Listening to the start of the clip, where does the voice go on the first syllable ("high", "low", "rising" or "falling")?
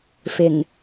low